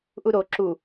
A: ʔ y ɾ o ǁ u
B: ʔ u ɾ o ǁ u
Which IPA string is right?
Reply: B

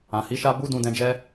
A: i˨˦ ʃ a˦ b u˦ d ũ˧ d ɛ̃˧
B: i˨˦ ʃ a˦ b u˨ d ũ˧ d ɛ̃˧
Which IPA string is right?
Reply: A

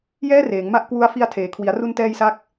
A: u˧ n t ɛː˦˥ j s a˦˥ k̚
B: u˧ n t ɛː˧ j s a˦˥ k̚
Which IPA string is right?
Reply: B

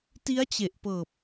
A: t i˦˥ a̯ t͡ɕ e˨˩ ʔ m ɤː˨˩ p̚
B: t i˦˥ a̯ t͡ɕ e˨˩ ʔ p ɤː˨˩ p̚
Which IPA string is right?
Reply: B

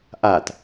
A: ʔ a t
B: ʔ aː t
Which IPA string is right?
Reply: A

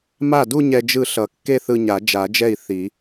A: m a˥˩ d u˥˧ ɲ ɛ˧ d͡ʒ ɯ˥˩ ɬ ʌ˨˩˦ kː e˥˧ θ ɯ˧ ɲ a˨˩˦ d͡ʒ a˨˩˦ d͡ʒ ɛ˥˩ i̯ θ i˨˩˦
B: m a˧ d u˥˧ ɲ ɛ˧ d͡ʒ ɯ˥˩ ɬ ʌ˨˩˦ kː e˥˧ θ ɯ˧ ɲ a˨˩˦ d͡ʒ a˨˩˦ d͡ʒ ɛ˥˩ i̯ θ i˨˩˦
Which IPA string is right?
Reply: A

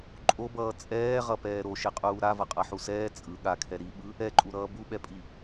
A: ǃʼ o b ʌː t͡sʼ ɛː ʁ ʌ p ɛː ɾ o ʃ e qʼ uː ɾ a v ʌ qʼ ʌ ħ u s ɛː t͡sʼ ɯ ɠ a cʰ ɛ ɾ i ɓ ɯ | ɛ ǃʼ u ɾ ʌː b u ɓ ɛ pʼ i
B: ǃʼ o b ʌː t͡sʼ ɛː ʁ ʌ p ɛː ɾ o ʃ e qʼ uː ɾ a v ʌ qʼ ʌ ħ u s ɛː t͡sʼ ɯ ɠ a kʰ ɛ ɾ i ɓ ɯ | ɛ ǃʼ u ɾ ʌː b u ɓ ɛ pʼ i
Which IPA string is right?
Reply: B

